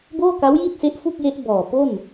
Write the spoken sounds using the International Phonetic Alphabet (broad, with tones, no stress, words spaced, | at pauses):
boː˥˩ka˦˥wji˥˩t̚ se˦˥ʔfu˥˩k̚je˦˥ʔ bɔː˨˩ po˥˩n